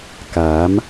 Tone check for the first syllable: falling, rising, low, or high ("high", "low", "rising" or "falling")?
rising